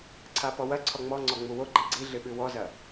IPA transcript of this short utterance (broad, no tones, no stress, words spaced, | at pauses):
ǀʰapɔwɐ ǀʰɔŋ͡mɔ ŋ͡ǀɔŋ͡muwoɡ͡ǃi ɡ͡ǀiɮɨɓɨ wɔzɐ